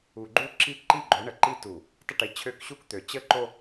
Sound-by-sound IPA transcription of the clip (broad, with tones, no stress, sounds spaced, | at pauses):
u˨ ɡ͡ǃ u˦ ǁ i˦ ǃ i˦ ɡ͡ǃ o˨˦ ɳ ə˨ ǃ i˦ t u˨ | tˤ ə˦ ʈ i˨ t͡ɕʰ ø˦˨ k ɕ u˦ k t̪ ø˨ t͡ɕ ə˦ ǃ o˦